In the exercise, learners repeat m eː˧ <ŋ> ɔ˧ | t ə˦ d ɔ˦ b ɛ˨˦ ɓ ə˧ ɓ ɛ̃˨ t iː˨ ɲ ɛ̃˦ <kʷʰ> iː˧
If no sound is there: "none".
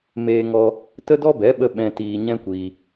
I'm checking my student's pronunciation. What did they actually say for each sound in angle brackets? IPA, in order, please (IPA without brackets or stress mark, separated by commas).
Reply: ŋ, kʷ